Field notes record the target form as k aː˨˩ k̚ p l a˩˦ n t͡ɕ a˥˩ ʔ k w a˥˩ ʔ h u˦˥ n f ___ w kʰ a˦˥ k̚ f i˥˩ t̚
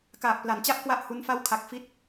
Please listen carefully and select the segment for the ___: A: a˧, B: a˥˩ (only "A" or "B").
B